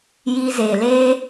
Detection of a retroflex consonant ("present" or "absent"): absent